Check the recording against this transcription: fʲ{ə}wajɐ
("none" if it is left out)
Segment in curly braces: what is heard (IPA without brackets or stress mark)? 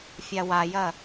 a